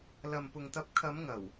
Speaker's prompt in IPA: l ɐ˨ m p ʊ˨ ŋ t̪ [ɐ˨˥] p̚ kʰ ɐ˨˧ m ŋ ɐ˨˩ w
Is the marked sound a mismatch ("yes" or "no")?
yes